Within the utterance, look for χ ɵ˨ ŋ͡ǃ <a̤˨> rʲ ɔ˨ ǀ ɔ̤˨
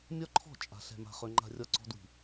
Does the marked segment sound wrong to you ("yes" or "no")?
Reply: no